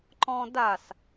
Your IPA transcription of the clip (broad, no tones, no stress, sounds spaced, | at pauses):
ǃ ɔ̃ d a s